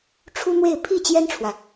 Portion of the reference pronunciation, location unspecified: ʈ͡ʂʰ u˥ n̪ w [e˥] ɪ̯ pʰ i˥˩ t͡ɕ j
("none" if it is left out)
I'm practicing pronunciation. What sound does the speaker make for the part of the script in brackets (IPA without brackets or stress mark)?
e˥˧